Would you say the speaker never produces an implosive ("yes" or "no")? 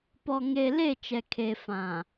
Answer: yes